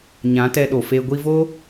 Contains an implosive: yes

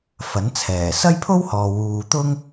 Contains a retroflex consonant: no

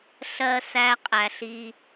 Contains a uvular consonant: yes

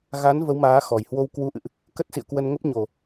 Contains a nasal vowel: no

